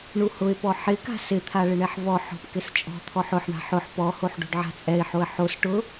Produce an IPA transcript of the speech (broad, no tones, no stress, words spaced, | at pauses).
ɳuhʊɪ̯pɔ ħɪka̤ sɪt̪ʰa ɭɪɳɛħvɔ ħɔ̤pkɪst͡ʃʼɔ̤ t̪ʰɔħʊħ ɳa̤ħʊħ pɔhoħ ɖo̤ɖʕa̤t͡sʼɛɪ̯ħoə̯ ħos ʈʊ